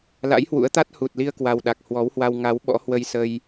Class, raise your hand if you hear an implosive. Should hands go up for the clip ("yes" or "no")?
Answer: yes